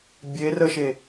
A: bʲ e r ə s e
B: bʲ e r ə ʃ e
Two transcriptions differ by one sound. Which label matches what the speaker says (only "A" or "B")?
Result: B